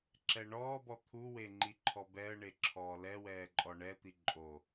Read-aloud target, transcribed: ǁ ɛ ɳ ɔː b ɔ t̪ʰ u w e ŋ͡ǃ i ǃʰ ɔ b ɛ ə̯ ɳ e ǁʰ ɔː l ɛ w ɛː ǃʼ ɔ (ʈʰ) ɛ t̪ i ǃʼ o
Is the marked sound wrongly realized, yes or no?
yes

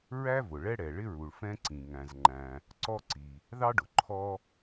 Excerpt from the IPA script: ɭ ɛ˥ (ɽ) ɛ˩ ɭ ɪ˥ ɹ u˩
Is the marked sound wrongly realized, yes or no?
no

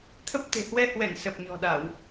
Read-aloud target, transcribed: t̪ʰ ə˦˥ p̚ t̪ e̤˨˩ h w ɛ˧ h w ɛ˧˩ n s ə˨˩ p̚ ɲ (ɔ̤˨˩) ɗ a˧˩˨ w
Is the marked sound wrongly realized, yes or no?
no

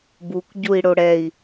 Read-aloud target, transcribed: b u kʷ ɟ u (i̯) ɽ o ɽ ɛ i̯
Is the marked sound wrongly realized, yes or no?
no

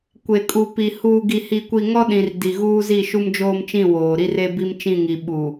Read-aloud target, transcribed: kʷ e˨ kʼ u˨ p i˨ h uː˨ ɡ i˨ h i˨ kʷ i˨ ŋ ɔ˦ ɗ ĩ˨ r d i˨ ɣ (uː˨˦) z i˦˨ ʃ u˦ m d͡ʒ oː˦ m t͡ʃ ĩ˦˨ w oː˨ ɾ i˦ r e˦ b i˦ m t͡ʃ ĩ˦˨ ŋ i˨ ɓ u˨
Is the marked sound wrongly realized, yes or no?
yes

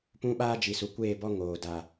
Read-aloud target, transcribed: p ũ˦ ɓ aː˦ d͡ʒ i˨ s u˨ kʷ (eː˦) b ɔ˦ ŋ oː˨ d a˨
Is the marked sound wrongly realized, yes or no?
yes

